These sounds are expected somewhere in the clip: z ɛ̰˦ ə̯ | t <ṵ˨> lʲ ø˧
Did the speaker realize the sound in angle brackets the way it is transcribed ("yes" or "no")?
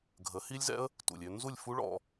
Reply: yes